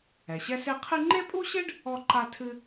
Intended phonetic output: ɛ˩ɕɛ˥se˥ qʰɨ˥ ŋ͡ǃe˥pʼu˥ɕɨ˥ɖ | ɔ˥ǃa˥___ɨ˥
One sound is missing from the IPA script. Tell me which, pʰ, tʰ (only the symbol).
tʰ